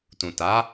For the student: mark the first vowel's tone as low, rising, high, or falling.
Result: low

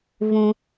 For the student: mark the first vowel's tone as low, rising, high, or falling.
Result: high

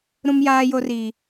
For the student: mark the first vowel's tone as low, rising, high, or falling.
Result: high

